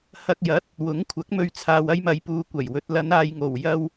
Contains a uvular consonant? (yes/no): no